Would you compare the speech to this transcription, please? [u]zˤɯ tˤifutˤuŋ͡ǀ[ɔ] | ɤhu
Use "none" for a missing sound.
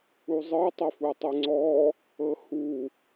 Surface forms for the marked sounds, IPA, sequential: u, ɔ

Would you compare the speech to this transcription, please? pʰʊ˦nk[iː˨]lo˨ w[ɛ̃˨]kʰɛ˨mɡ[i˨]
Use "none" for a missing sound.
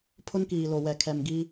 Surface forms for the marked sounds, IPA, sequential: iː˨, ɛ˨, i˦

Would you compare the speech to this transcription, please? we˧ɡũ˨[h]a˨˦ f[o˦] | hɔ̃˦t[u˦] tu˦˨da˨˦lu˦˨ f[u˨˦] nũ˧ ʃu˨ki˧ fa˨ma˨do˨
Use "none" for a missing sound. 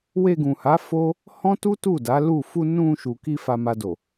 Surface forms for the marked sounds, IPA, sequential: h, o˦, u˦, u˧

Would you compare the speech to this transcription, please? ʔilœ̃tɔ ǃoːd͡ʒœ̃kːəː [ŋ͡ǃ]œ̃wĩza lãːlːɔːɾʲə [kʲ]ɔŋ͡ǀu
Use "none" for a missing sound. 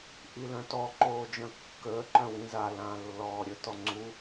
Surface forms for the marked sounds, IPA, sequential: ǃ, t

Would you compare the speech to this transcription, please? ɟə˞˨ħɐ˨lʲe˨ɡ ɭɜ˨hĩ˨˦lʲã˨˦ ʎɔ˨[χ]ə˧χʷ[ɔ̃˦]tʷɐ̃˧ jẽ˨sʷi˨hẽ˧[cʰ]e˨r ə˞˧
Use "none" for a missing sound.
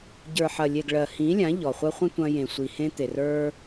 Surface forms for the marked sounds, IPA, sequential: χʷ, ə̃˦, t̪

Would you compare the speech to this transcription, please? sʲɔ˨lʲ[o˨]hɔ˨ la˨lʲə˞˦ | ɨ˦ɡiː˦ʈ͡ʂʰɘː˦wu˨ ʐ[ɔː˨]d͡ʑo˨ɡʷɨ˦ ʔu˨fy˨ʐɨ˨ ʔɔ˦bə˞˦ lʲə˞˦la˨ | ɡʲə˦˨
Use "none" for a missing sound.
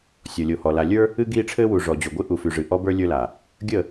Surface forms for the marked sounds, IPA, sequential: o˨, ɔ˨

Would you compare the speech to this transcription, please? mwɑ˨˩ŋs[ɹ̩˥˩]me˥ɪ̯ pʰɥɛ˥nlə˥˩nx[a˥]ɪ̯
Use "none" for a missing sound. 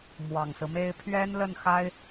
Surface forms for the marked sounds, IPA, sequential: ɹ̩˦, a˥

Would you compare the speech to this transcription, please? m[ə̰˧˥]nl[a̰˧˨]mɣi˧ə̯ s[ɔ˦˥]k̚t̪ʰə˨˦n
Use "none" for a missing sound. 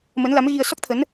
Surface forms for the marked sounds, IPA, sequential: ə˨˦, a˨˦, ɔ˦˥

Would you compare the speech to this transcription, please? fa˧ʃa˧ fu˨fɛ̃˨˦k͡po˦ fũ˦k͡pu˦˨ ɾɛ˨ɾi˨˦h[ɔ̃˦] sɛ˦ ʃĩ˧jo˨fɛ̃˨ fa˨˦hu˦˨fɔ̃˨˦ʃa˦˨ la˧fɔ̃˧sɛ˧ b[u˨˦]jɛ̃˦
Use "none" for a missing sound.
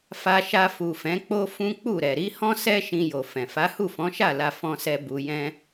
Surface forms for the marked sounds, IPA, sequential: ɔ̃˦, u˧

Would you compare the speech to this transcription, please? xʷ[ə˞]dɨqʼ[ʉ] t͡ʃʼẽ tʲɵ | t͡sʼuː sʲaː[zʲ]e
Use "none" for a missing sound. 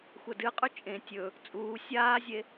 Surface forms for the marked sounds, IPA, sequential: ɐ, ʉ, zʲ

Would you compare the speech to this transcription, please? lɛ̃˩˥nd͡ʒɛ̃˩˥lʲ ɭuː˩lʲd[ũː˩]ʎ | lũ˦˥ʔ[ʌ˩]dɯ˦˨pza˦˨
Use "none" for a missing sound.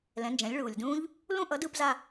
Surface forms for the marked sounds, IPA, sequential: ũː˦˥, ʌ˩˥

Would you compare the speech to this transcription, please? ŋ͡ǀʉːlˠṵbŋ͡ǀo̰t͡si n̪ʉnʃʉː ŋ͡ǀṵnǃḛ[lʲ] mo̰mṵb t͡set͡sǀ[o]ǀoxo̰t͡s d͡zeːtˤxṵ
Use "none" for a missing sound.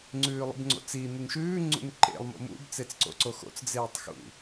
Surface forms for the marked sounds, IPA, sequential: lˠ, o̰

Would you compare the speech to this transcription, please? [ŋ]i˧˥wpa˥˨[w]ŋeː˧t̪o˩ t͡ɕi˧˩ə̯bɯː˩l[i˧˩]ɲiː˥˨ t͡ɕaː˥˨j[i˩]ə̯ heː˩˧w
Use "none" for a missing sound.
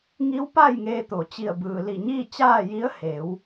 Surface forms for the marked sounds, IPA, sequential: ŋ, j, i˧˩, i˧˥

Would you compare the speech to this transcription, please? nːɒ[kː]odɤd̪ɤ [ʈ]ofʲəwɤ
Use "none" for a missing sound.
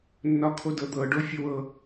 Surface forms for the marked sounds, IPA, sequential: kʰ, ɖ

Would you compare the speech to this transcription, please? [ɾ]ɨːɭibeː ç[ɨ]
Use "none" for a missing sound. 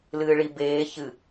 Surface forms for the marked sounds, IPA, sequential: l, ɨ

